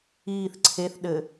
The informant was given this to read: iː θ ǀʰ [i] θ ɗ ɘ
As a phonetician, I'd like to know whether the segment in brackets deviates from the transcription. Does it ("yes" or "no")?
yes